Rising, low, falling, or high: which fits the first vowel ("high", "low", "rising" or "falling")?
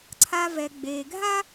low